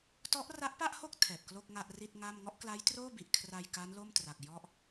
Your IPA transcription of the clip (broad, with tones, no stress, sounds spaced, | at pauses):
t ɔ˦˥ ʔ r a˦˥ ʔ p a˥˩ ʔ h o˥˩ k̚ tʰ ɛː˨˩ p̚ k l o˥˩ k̚ ŋ a˥˩ ʔ r i˥˩ t̚ ŋ a˥˩ m ŋ ɔ˥˩ ʔ k l a˦˥ j t r oː˥˩ b i˨˩ ʔ kʰ r a˧ j k a˦˥ n l o˥˩ m t r a˨˩ k̚ j ɔ˥˩ ʔ